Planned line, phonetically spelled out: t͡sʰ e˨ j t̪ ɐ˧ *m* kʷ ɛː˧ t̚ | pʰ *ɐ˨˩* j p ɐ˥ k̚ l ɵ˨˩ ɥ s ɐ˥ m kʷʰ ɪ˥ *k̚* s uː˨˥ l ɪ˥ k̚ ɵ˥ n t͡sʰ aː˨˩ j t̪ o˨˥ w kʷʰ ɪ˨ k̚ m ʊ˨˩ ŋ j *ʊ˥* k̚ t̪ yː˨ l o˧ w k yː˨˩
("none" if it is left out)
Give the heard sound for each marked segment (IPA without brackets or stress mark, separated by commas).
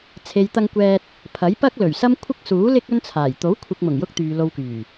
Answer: ŋ, ɐ˨˥, k̚, ʊ˥